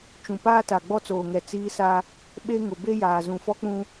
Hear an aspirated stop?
no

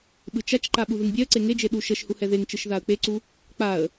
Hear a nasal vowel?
no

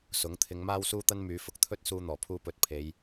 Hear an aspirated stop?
yes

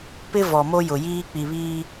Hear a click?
no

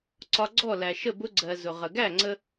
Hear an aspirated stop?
no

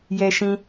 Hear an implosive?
no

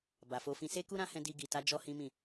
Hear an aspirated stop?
no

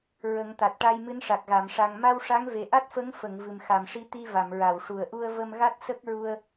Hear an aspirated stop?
no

